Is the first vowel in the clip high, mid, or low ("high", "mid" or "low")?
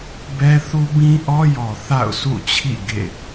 mid